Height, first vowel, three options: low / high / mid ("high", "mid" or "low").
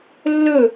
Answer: mid